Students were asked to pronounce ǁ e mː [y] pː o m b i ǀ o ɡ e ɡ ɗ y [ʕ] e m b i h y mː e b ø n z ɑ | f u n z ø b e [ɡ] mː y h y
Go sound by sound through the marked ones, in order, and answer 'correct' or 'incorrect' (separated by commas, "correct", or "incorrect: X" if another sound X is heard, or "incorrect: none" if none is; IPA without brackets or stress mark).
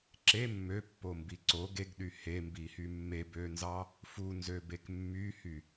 incorrect: ø, incorrect: h, incorrect: k